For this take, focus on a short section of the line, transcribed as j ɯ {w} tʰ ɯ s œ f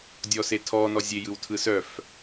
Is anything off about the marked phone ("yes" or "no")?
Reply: no